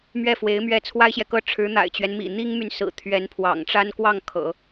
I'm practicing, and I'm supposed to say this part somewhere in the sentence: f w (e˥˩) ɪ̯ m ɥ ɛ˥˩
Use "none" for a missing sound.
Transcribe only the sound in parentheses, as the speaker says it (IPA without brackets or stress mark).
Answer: e˧˥